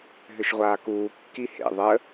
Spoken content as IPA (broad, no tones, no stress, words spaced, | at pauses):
ɦʏʃʁʷaːkuː kːihḛ ðˤə